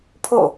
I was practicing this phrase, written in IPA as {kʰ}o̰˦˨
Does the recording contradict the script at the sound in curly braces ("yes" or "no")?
yes